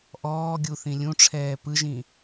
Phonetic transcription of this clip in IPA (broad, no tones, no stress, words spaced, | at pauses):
ʔɔːɡʲuθĩ lʲũʈ͡ʂʰɛː pɯʒĩ